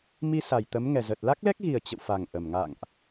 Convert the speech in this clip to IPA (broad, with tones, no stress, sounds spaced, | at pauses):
m i˧ s a˨˩ j t̪ ə˨˦ m ŋ ɛ˨˩ z ə˨˩ t̚ l a˦˥ k̚ l ɛ˦˥ k̚ ɣ i˨˩ ə̯ t͡ɕ ə̰˧˨ w f a˨˩ ŋ ʔ ə˨˩ m ŋ a̰˧˨ ŋ ʔ